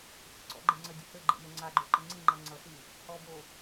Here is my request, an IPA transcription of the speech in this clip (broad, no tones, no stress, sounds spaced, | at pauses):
sʲ ə̰ ǀ ɔ̰ ɡ͡ǃ e ŋ͡ǀ ə dʲ ə h ɘ ɡ͡ǃ ḛ m ɘ ŋ͡ǀ a ɡ͡ǃ o ǃ ə ŋ͡ǀ i ŋ͡ǃ ʌ ŋ͡ǀ ʌ s i | h ɔ b o